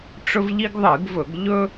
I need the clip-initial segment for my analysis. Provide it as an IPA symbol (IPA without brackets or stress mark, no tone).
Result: ʈ͡ʂ